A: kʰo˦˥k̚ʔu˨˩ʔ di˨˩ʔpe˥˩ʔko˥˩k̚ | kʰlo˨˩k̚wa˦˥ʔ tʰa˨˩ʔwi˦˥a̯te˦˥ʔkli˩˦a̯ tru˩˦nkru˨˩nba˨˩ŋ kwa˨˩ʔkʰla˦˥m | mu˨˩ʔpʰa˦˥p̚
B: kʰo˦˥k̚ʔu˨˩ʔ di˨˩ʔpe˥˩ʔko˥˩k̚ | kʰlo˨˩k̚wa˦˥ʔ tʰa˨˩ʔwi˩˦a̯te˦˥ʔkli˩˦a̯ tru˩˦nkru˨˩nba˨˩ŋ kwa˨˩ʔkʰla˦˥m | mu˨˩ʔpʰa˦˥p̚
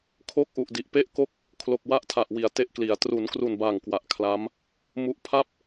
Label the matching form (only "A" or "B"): B